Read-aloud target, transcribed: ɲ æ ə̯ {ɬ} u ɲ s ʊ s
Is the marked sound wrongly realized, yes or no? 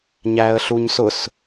no